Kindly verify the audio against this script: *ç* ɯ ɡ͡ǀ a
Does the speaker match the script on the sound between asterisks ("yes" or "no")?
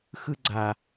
no